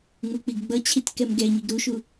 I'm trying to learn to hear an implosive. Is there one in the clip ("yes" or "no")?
no